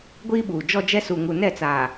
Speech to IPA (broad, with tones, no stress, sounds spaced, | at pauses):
ɡʷ iː˦ ɓ uː˨ d͡ʒ ɔ˦ d͡ʒ ɛ˦ s u˨ ŋ u˨ n ɛ˦˨ t͡s aː˨